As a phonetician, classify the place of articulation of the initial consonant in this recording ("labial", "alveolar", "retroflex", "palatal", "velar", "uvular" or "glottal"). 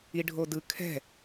retroflex